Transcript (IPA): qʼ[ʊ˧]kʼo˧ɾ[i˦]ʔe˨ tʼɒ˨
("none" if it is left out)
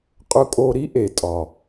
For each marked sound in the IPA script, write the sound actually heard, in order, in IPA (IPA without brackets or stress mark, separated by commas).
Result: ʊ˧, i˦